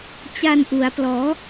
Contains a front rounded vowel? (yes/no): no